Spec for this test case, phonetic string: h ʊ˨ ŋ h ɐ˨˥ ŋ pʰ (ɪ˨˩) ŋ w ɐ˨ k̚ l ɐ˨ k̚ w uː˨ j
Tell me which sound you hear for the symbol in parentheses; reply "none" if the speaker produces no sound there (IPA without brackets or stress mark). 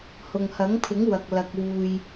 ɪ˨˥